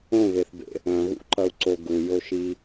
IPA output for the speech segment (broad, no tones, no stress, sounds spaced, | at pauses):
õ β e θ b ḛ | œ̃ ɣ ṵ ǃ ɐ u̯ ǀ o ɡ u j o ʃ i